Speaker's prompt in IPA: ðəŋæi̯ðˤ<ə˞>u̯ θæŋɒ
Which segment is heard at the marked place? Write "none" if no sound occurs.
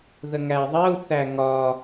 ɜ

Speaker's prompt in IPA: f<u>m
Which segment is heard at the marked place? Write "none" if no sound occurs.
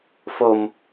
o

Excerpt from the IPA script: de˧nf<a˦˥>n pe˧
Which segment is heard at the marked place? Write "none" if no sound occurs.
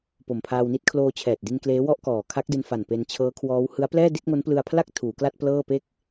a˨˩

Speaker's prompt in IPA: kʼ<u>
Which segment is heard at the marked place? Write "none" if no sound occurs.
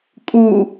u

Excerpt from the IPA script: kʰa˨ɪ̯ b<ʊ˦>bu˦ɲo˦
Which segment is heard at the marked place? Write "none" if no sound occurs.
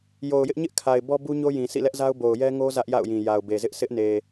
ɔ˦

